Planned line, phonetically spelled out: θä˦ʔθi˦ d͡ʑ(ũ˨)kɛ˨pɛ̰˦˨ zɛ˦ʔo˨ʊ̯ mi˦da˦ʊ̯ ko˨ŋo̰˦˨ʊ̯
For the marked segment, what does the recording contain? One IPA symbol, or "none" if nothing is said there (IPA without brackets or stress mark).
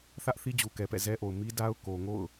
u˨